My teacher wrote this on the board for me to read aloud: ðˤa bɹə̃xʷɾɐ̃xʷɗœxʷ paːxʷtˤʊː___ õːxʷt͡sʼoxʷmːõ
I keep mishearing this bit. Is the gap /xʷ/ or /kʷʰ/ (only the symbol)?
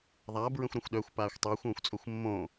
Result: xʷ